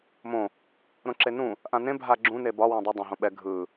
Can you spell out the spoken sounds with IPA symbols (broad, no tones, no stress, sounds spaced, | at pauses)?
m õ | ɾ õ ǁ e n ũ | ʔ ã n ẽ bʱ a ɡ͡ǁ ũ n e b ɒ w ẽ dˤ e dˤ ã ɦ õ ɓ ɛ ɡʱ ɯ